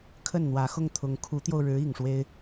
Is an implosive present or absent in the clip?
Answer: absent